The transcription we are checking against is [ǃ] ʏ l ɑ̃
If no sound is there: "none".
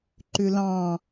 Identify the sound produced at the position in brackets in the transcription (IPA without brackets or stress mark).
ǃ